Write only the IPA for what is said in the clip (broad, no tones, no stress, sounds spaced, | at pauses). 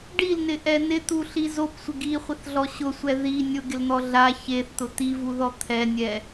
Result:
ɖ i l n ɪ ʔ ɛ n ɪ t̪ u ɬ i z o p sʷ ɪ ɡ i χʷ ɪ θ ɮ ɔ ɕ ʊ sʷ ɛ ð i nʲ ʊ ɡ ɪ l n̪ ɔ ɮ a ç e θ t̪ ʊ t̪ i v u ð ɔ t̪ʰ ɛ nʲ ɛ